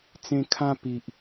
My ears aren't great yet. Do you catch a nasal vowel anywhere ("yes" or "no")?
yes